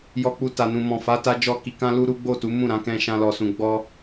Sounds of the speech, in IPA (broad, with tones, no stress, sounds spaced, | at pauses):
j ɔ˦ k͡p u˦ t a˧ n ũ˧ m ɔ̃˨ f a˨˦ t a˧ d͡ʒ ɔ˦ k i˧ k ã˦ l u˦ ɾ u˦ ɡ͡b o˦˨ t u˨˦ m ũ˦˨ ɾ ã˨˦ k ɛ̃˦ ʃ ã˦ l ɔ˧ s ũ˧ ɡ͡b ɔ˦